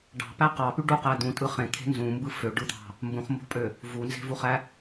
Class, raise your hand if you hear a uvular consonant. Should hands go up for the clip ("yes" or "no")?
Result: yes